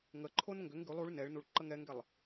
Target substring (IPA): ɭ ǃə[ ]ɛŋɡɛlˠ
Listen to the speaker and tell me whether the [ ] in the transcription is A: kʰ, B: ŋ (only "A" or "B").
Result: B